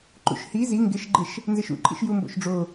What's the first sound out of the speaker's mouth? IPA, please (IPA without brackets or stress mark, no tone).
ǃ